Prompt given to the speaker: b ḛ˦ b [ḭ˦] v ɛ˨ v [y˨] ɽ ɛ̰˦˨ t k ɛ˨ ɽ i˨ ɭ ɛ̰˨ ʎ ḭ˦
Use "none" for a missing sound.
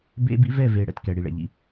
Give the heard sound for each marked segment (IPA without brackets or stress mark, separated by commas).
ḭ˦, e˨